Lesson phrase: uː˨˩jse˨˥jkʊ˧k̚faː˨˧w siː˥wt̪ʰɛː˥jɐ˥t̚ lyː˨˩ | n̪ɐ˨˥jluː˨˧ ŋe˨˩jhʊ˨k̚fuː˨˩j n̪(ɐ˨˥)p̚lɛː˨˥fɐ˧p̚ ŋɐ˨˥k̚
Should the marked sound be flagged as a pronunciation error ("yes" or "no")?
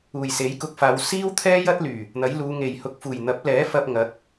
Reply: no